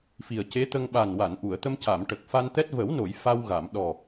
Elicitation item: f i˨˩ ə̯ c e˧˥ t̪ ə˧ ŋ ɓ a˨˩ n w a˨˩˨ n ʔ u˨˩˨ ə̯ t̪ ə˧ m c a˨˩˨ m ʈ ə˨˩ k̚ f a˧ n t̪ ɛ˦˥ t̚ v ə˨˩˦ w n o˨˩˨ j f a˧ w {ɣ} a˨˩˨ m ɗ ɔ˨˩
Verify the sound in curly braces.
correct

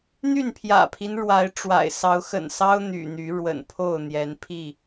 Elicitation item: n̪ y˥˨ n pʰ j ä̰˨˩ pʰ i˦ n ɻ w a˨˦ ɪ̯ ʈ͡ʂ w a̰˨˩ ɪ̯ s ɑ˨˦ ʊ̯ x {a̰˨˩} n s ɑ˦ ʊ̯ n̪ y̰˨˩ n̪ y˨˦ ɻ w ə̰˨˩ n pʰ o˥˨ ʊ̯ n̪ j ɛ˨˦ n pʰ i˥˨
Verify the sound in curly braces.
incorrect: ə̰˨˩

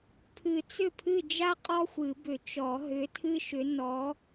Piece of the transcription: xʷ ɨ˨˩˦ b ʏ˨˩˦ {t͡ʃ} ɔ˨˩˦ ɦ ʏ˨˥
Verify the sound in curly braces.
correct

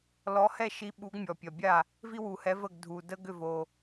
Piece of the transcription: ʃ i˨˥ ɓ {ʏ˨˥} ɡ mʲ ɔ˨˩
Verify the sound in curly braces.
incorrect: u˨˥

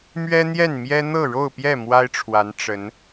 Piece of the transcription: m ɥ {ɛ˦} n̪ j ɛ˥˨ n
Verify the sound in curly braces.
correct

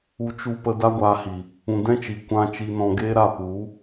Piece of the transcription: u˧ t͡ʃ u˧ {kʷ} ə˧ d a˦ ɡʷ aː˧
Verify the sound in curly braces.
incorrect: p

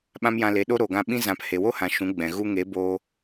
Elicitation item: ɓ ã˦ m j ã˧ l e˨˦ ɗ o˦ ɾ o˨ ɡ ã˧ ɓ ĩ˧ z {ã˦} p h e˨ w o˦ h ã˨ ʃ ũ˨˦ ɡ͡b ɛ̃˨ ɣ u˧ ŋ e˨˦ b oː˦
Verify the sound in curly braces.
incorrect: ã˨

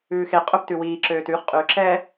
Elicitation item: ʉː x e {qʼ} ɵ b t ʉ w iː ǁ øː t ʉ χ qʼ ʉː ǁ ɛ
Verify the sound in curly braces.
correct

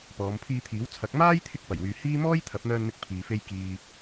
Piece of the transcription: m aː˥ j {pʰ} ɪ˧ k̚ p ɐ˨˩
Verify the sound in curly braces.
incorrect: t̪ʰ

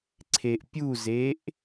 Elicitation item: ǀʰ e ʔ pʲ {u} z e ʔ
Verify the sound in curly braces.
correct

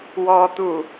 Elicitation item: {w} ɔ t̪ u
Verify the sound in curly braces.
correct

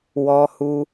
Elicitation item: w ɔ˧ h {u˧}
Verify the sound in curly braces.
correct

